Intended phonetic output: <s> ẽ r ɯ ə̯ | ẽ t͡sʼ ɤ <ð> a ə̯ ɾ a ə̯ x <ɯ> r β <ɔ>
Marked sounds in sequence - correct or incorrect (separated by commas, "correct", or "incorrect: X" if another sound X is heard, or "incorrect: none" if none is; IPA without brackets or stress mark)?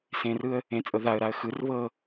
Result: correct, correct, correct, incorrect: ɤ